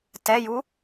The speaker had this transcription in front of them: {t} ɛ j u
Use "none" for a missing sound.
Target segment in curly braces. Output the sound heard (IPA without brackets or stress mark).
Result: t